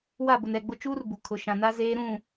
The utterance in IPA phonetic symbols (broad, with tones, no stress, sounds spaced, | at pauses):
w a˦˨ b ʊ˨ n ɛ˨ ɡ͡b ʊ˦ t͡ʃ uː˦ r b u˨ kʰ ʊ˨ ʃ ã˨ n a˦ z eː˦ ɾ ũ˦˨